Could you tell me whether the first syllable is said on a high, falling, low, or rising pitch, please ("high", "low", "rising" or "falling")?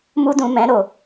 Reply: high